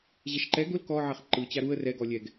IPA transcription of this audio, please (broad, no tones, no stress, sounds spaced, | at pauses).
ʑ ɛ ʃ ǃ ɛ ɡ ʊ l k ɔ ʕ ɛ χ ǃ ɯ t͡ɕ a ɾ u ə̯ r ɛ ɡ ɔ lʲ ɛ ɡ